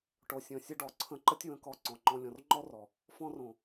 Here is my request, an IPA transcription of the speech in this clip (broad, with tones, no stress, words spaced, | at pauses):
ʈo˨sʲɔ̃˨sʲɵ˧ ɖɔ˨ǀʰə̃˧ǃə˦tʲ wə̃˧kɔ˧ ǀɔ̃˨ŋ͡ǃɔ̃˧ lʲɔ̃˨rŋ͡ǃɔ˦rɔ˨ | fɔ̃˧rõ˨